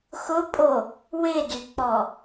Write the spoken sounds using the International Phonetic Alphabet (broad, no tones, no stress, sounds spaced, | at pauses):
x ʊ pʼ o | w ɪ d y k͡p ɔ